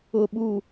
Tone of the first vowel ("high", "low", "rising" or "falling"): low